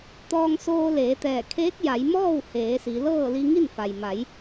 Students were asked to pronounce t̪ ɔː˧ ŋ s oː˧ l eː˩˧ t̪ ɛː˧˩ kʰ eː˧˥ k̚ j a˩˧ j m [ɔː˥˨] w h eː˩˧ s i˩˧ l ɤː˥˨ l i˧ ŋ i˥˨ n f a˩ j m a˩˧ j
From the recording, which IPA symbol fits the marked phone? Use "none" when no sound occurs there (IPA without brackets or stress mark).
ɔː˥˨